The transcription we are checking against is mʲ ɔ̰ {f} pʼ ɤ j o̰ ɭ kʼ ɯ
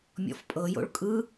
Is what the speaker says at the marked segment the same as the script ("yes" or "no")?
yes